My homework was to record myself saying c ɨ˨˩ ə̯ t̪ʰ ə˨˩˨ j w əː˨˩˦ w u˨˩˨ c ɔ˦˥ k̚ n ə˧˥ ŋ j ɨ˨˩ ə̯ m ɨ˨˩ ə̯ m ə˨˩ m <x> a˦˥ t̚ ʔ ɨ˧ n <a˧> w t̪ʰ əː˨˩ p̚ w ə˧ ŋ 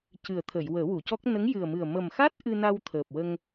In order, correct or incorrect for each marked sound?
correct, correct

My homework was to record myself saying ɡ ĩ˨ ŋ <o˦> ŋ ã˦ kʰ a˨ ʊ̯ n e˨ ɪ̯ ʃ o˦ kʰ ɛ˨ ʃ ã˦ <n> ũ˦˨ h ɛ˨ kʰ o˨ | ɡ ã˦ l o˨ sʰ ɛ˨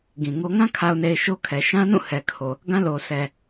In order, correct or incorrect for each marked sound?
correct, correct

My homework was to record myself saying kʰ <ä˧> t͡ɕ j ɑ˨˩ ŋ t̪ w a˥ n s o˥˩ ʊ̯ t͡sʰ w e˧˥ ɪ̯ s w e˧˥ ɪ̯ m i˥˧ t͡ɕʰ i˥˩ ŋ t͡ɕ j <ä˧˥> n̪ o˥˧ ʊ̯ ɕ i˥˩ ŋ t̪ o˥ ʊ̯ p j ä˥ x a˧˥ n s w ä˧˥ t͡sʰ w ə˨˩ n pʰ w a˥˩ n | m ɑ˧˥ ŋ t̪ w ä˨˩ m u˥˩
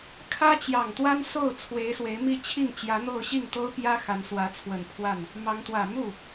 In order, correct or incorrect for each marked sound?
incorrect, correct

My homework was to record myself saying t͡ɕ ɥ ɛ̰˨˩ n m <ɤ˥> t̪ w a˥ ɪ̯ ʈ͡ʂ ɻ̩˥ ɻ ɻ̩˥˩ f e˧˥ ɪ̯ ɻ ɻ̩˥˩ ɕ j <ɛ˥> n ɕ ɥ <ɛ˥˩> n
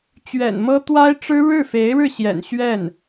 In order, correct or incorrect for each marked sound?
correct, incorrect, correct

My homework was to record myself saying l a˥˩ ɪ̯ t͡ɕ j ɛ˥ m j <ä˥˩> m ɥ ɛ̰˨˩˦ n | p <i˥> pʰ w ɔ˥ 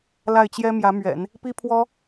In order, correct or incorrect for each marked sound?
incorrect, correct

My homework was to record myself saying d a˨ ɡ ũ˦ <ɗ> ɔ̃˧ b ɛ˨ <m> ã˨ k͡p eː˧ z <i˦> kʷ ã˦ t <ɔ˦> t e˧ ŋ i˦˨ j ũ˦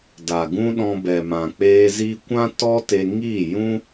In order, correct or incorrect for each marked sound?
correct, correct, correct, correct

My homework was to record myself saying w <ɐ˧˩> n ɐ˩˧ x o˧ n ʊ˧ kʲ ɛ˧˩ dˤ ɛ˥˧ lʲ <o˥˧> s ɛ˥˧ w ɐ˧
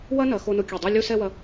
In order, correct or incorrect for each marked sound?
incorrect, correct

